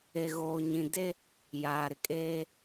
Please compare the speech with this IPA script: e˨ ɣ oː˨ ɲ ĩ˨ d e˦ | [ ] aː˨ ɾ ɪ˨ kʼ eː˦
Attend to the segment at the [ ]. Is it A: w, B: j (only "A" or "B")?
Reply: B